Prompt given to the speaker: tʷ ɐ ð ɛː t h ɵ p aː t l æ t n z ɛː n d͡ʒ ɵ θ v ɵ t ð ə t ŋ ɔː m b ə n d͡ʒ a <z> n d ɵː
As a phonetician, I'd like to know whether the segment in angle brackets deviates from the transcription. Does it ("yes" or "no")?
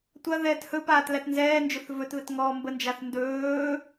yes